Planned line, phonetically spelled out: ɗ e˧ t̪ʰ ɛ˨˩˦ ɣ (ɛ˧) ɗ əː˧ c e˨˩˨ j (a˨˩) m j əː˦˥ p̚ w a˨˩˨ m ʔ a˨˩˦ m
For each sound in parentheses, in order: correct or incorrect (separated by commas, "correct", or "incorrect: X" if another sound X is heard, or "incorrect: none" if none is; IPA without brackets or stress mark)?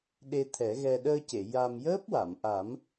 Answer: correct, incorrect: a˧